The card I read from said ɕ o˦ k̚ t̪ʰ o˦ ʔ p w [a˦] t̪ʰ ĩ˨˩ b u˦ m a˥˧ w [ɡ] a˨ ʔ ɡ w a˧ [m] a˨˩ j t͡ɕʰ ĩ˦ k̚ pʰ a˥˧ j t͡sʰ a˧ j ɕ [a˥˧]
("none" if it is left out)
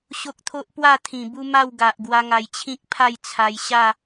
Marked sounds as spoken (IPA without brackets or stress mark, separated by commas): a˥˧, ɡ, ŋ, a˥˧